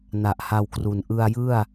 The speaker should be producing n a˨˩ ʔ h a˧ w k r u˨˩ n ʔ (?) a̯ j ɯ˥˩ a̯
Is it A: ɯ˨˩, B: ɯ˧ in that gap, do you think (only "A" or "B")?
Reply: B